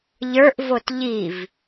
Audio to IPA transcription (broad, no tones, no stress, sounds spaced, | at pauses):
ʎ ə˞ ʔ v o t ʎ i v